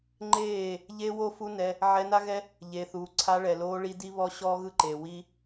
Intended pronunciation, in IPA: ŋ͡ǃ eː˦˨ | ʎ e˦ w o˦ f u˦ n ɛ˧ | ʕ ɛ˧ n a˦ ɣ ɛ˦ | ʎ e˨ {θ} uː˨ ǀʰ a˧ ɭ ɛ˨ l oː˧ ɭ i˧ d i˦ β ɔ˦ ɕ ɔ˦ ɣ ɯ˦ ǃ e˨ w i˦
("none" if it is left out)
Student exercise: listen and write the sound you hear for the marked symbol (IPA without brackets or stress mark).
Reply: θ